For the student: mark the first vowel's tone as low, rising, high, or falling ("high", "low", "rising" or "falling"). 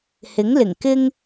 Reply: rising